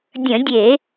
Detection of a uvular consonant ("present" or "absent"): absent